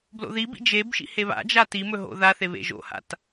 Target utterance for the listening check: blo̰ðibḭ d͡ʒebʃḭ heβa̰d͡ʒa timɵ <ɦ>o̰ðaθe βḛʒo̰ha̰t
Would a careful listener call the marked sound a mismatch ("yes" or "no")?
no